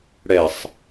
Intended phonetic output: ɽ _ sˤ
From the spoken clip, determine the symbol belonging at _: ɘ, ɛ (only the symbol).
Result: ɛ